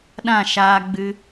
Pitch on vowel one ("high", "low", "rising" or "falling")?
falling